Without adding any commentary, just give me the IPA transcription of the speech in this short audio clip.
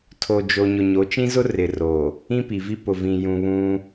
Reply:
tʰ o˨ d͡ʒ o˨ ɲ ʊ˨ ɲ o˨˦ t͡ʃ ĩ˦ z ʊ˦ r ɪ˨ r o˨ | ĩ˦ p i˨ v i˦ p ʊ˨ v ĩ˨ j ũ˨ β ũ˦

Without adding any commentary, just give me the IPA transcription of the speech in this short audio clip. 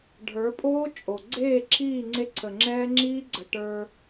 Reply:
ɖʱ ə˞˨˦ pʼ oː˦ t͡ʃʼ o˨ ɡ͡ǀ eː˦˨ ǁʰ iː˦˨ ŋ͡ǀ e˦ ǀʰ ə˨ ŋ͡ǁ ɛː˦ ŋ͡ǁ iː˦ ɡ͡ǀ ə˨ ʈ ə˞˦

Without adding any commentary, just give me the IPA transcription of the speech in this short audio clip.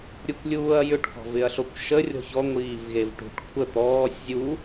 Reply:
ɾʲ u kʷ lʲ uː ɐ̯ j ʏ ʈ k ɔ̤ v ɪ ɐ̯ ɬ o kʷ ʃ ə rʲ ɔ̤ ç ɔ ŋʷ iː v ɣ e v ʈ ṳ ʈ kʷʰ ə t̪ ɔː sʲ zʲ u

